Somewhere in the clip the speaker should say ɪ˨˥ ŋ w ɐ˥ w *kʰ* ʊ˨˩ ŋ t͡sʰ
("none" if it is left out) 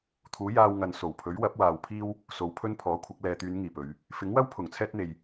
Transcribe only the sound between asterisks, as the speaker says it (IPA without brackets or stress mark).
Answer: pʰ